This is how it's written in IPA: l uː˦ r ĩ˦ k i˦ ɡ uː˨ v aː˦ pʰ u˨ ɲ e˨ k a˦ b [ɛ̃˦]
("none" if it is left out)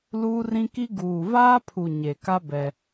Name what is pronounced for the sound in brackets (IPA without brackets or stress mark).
ɛ˦